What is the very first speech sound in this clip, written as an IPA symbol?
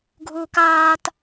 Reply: ɡʱ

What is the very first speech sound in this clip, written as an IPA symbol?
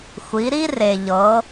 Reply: xʷ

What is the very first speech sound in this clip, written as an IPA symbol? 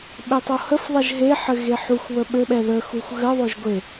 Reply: ɓ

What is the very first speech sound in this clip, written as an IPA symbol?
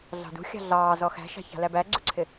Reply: ɮ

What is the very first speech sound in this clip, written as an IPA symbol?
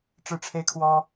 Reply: ʈ͡ʂ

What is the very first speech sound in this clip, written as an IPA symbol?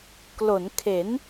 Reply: k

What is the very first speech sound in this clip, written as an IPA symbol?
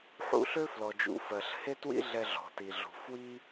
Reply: ħ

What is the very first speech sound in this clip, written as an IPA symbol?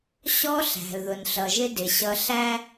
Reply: ɕ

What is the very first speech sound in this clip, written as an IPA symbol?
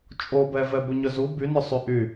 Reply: t͡ʃʼ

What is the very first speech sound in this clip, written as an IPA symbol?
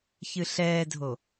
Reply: ç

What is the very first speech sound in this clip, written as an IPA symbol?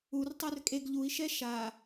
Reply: u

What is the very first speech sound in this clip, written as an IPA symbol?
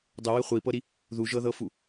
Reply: dˤ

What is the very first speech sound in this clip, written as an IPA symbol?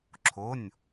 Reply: ǁʰ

